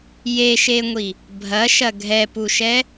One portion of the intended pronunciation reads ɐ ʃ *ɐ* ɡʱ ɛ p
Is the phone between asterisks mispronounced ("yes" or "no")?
no